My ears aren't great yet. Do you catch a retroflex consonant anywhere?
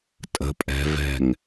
no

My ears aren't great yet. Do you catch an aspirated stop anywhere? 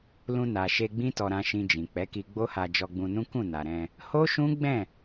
no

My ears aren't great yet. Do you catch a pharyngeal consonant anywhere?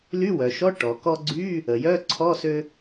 no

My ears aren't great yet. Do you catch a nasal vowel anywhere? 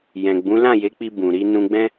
yes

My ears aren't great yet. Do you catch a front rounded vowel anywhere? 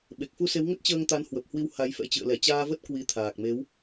no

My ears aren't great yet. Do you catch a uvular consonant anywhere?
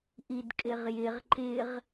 yes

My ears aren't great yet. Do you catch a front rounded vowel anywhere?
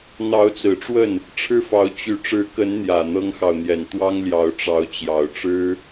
yes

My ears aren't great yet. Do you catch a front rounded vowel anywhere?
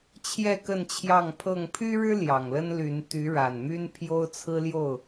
yes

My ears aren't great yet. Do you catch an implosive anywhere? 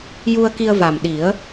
yes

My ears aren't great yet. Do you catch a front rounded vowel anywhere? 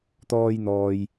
no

